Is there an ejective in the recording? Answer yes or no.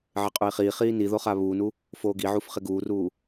yes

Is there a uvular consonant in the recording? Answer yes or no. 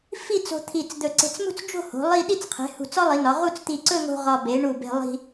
yes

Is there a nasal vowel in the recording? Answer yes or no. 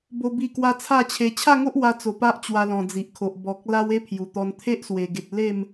yes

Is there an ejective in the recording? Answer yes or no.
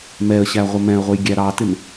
no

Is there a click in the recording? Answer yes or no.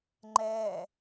yes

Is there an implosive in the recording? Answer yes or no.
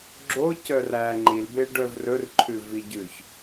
no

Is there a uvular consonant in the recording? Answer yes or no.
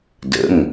no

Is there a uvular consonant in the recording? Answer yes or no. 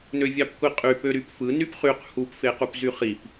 yes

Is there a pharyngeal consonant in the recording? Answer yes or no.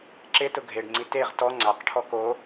no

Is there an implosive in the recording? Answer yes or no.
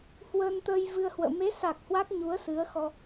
no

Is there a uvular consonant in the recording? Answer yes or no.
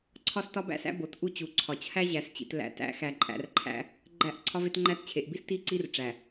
no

